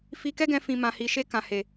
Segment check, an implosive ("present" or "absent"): absent